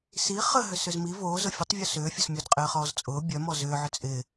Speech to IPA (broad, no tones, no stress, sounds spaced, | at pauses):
s i χ ə ɦ ʏ s ʏ z m i v oː z ʊ fʲ ʊ tˤ vʲ o s ʏː fʲ ʊ s mʲ o d qʼ ɪː χ ɔː z t͡sʼ ʊː bʲ œ m ɔ z ʏː ʕ ʏ t͡sʼ ɪ